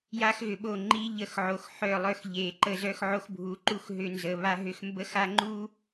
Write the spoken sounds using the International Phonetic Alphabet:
j a˦ x ɣ ʏ˨ ɓ o˦˨ ŋ͡ǃ i˦ ʎ ə˦˨ x ʕ o˨ x ħ œ˦˨ lˠ œ˦ x ʎ e˨ ǃ ə˦ z œ˦ x ʕ o˦ x bʱ u˨˦ ǃ u˦ x ɦ ʏ˦ n z ə˨ β a˦ ɦ ʏ˦ x m b ə˦ x a˦ ŋ͡ǃ u˦

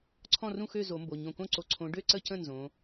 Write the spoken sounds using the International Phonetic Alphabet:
ǀʰ ɔ̃˥˨ r ũ˥˨ x ø˥˨ z o˨˩˦ m b o˩˧˩ ɲ õ˧˩ k õ˥˨ ǀ o˧˩ ǀʰ õ˨˦ ɖ ø˥˨ ǀ ə˥˨ c ə̃˥˨ n z õ˨˦

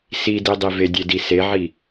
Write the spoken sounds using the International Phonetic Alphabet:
s i d i dˤ i v e dʲ e d i s e ʕ i

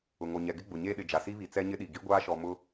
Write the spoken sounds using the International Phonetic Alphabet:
ʊ˨ ŋ o˨ ɲ ɛ˨ ɡ ɪ˦ ɡ͡b ʊ˨ ɲ eː˦ ɗ ɪ˨ d͡ʒ a˨ s i˦ β i˨ t͡s ɛ˦ ɲ ɪ˦ ɗ i˨ ɡ i˦ ɡʷ aː˦ ʃ ɔ˨ m ʊ˦

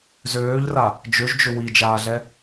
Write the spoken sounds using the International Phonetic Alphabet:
z øː ʎ r a | d͡ʒ ø ʒ d͡ʒ ʏ w i d͡ʒ aː ɮ ɛ

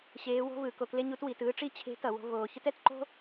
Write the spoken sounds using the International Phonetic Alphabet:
ɕ eː˧˥ w o̤˥ v ɯ˩˧ k o˧ k l e˥ ɲ u˧˥ t w i˩˧ t ɯː˥ ʈ͡ʂ i˥ t͡ɕʰ e̤˧˥ t ʌ˩˧ w o̤˧ v oː˧ ç ɯ˥ t ɛ˧˥ t ǃ o̤˥

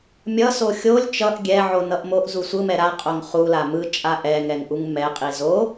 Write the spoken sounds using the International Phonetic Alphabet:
mʲ ʌ s o xʲ o lʲ t͡ʃ ʌ ʔ ɡʲ ɛ ʕ o n ʌ ʔ m o ʔ z u sʷ ɯ m ɛ ɾ a qʼ o ŋ χ u l a m ɯ t͡ʃʼ a ʔ ɛ ŋ ɛ ŋ ʔ u ŋ m ɛ qʼ i z o

